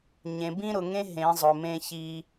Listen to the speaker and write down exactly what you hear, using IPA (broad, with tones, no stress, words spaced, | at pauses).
ɲẽ˨bĩ˦ ɾʊ˨ŋẽ˦ ɦẽ˨˦zˤʊ˨mẽ˦ çi˦